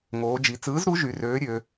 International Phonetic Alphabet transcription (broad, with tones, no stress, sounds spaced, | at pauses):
ŋ oː˩˧ d͡ʒ i˩˧ t͡s ɯː˨˥ z ɾ u˨˥ ʒ y˩˧ r øː˨˥ ɾʲ ø˩˧